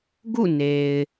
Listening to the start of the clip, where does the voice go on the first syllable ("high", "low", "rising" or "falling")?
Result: falling